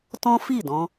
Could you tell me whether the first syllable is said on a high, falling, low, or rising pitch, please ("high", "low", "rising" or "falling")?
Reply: high